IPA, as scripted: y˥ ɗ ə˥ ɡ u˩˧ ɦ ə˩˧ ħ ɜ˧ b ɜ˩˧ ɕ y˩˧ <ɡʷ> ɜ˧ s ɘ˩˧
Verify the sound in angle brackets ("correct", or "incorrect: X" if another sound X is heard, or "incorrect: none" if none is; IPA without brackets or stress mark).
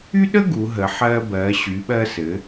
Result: incorrect: ɓ